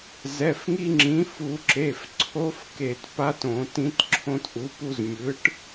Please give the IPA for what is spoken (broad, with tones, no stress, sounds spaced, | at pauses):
z ɛ˩˧˩ f ŋ i˧ ŋ͡ǁ ĩ˩˥ f u˧˩˧ ǁ e˩˧˩ f ǀʰ o˧˥ f k e˧˩˧ t p a˧˥ t õ˧˩˧ t ĩ˧˥ t ǁʰ õ˧ t ʔ u˩˥ p u˧ z mʲ ɯ˩˥ ʈ